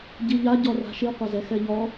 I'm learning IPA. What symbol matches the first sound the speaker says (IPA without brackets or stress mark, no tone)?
ɟ